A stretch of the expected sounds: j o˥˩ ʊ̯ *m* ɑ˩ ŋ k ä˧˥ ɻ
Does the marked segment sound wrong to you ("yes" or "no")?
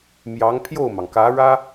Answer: no